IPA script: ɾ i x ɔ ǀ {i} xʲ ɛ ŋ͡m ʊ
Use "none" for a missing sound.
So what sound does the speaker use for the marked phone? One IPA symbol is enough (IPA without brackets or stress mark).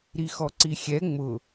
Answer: i